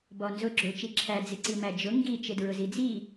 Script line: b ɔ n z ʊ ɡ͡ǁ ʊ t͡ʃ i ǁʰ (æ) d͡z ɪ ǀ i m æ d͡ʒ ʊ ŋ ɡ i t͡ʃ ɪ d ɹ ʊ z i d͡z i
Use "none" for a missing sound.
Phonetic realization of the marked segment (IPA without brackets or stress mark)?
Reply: æ